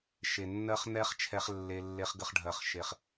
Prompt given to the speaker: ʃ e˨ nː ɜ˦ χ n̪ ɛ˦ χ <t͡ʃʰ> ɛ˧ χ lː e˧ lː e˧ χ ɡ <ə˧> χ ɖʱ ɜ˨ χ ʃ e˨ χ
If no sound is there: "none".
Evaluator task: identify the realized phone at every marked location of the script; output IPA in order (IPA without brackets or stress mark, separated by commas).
t͡ʃʰ, ə˧